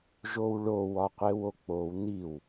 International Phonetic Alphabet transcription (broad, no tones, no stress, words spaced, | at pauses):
ʒowɭow ɒqʷewok͡pow niw